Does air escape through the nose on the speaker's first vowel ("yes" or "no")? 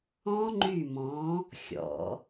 yes